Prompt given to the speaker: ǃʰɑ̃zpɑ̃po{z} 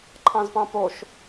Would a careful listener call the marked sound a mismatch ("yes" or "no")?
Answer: yes